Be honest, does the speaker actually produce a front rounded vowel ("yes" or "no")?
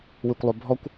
yes